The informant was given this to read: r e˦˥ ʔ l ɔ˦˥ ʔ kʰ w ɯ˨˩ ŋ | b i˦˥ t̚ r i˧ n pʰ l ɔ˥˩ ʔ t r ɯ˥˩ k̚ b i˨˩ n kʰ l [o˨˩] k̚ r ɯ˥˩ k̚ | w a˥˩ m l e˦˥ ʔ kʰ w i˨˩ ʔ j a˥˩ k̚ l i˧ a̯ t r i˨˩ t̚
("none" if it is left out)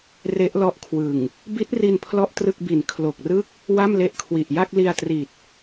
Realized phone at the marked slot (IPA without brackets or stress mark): o˨˩